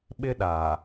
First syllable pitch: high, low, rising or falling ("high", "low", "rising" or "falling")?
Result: high